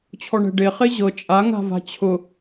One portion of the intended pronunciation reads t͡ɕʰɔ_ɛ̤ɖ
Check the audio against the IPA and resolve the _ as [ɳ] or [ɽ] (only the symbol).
ɳ